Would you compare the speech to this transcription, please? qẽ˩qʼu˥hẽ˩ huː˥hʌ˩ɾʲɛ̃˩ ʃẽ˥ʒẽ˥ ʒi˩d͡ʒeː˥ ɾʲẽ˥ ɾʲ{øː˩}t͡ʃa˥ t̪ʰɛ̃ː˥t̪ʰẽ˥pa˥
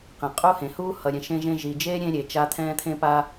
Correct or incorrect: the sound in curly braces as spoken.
incorrect: eː˩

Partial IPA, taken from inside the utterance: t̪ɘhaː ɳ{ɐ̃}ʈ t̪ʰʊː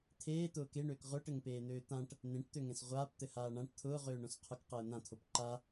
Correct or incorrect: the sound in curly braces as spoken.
incorrect: ã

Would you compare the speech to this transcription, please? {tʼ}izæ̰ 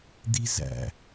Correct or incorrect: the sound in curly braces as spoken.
incorrect: d̪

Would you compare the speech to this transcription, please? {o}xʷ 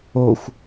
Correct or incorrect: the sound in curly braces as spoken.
correct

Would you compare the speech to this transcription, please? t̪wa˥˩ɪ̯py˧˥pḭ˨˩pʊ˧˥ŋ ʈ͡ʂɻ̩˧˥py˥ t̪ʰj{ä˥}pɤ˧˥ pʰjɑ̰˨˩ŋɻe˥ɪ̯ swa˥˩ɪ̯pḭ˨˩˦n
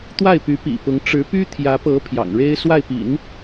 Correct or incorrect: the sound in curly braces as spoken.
incorrect: ä˧˥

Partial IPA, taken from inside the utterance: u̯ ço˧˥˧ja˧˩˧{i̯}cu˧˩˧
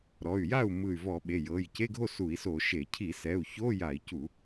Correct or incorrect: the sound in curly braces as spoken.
correct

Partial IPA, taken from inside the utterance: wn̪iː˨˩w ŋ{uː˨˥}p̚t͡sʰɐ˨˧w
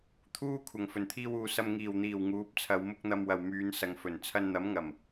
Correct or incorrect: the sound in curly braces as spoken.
correct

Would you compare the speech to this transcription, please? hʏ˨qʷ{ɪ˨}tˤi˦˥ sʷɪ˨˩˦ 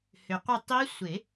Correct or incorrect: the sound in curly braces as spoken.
incorrect: ɪ˦˨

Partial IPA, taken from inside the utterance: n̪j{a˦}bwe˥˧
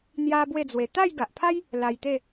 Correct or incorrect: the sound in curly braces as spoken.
correct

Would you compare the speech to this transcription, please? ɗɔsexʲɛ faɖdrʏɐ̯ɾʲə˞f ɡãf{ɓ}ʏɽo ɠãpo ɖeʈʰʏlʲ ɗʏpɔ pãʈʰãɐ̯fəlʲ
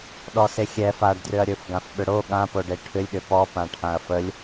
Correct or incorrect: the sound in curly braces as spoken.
correct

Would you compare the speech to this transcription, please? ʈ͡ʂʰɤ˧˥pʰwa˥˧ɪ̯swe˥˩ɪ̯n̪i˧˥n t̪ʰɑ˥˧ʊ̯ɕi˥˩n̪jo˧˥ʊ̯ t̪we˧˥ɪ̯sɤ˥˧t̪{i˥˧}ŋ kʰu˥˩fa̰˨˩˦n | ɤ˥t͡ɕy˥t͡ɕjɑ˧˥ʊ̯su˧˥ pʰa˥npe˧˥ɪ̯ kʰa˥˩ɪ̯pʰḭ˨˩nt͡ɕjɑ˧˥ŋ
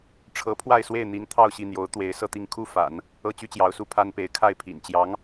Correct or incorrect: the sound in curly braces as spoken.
correct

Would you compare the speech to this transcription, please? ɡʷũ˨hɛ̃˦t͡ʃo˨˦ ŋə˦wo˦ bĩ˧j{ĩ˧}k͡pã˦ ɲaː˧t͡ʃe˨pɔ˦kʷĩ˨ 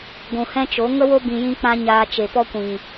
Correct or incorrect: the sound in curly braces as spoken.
incorrect: ĩ˦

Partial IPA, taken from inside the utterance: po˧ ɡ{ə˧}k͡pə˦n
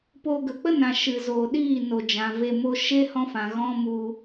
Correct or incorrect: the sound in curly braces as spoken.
incorrect: ə˨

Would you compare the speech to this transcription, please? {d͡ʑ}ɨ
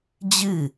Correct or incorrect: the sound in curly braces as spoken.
correct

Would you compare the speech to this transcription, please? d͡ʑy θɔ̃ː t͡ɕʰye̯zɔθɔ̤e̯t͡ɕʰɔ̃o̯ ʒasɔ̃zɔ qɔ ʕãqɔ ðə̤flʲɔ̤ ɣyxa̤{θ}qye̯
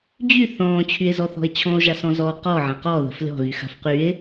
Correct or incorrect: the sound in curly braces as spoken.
incorrect: f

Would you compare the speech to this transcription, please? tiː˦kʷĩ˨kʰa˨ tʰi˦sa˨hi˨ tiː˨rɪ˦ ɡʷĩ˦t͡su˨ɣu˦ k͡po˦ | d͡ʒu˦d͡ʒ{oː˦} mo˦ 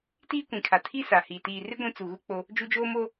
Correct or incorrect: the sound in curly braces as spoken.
correct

